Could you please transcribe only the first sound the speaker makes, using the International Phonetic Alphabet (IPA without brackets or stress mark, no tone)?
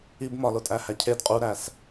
i